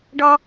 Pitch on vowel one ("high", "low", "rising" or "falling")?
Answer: high